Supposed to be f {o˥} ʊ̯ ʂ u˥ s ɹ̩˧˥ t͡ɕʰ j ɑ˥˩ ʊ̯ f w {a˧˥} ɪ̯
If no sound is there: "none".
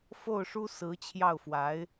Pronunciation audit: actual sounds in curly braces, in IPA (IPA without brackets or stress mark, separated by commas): o˥˩, a˧˥